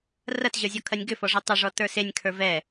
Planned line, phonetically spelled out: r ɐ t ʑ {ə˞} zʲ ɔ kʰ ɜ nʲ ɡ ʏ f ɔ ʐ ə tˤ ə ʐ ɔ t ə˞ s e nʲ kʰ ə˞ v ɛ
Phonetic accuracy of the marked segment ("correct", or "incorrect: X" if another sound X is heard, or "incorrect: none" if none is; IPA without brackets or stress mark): correct